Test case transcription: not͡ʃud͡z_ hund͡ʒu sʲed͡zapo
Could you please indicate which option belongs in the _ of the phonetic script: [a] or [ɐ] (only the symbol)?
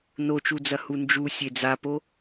ɐ